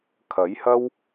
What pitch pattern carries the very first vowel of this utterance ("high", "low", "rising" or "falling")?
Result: rising